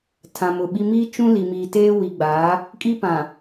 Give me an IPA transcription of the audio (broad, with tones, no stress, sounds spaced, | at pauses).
tʰ ã˨ m ʊ˨ ɓ i˦ m iː˦ t͡ʃ ũ˦ l i˨ m iː˨ t eː˦ w i˨ ɡ͡b aː˨˦ | kʼ i˦ p ã˨